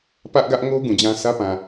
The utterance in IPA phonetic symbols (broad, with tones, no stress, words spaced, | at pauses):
pä˦ʔɡä˦ʔ ŋo˦ ɡũ˨d͡ʑã˦sʰä˦pã˨